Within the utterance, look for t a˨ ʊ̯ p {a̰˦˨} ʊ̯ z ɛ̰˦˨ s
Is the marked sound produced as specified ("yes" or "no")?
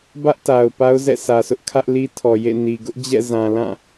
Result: no